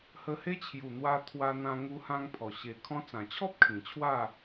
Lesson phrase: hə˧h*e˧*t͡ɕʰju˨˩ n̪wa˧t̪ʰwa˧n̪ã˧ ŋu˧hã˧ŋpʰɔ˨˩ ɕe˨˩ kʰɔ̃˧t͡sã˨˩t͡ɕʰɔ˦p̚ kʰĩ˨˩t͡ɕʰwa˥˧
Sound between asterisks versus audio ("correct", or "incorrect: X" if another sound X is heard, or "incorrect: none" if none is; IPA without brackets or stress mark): incorrect: e˦